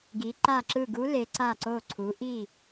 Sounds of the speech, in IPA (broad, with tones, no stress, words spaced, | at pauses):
ɡi˩˧ǃa˧˩ǁɯ˧˩ ɡu˧˥le˩˧ǀa˧˩ ǀo˧˩ǀʰu˩˧ʔi˧˩